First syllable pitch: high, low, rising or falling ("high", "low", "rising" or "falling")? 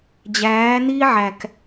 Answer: rising